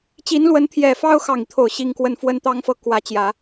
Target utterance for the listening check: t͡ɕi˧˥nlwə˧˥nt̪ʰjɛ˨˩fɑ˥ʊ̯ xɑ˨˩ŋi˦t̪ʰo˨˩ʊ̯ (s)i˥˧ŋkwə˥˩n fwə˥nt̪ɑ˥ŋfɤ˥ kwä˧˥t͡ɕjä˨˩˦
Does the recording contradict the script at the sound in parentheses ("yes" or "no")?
yes